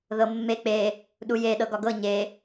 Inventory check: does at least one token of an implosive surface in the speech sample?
yes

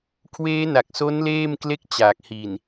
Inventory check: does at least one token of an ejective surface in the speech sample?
no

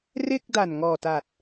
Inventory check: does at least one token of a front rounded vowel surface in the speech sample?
no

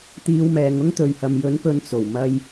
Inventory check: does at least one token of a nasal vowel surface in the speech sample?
no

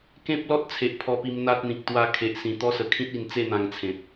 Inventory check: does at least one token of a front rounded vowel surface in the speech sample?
no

